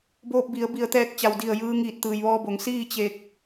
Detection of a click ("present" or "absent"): absent